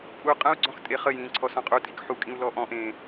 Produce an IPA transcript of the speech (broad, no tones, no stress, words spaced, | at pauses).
pʼu qʼə̃u̯ɡ͡ǀɔ̃x tʼeχəjĩː ǀʰɔsɔ̃qʼutʼik ħukʼĩu̯ lɔʔɔ̃ʔẽː